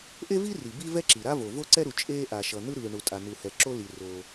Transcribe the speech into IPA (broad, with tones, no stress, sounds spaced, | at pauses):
ʔ e˥ v i˥ r i˩ b i˥ v ɛ˥ ǁ i˩ ɾ a˥ v o˩ v o˥ ǀ ɛ˥ ɾ u˩ t͡ʃʼ eː˥ ʔ a˩ ʃ ʌ˩ n̪ ɯ˥ ɾ ɯː˩ ɳ u˩ tʼ a˩ n̪ u˩ h ɛ˩ ǁ o˥ l i˩ r oː˩